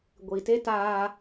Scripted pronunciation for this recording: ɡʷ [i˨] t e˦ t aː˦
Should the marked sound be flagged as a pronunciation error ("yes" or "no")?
no